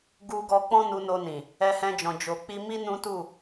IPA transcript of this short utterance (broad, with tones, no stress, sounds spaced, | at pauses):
ɡ u˧ ɡ ɔ˧ k͡p ɔ̃˦ n u˧ n o˧ n ĩ˨ | ɛ˧ h ɛ̃˧ d͡ʒ ɔ̃˨ d͡ʒ o˨ k͡p i˧ m i˦ n ũ˦ t u˦˨